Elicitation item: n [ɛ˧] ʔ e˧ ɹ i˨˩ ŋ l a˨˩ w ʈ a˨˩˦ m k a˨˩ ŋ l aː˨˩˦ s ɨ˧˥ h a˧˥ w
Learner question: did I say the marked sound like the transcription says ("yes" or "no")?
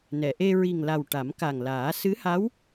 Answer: no